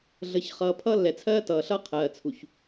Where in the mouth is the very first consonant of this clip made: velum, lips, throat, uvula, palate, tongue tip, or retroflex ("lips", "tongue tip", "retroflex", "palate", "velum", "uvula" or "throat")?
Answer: tongue tip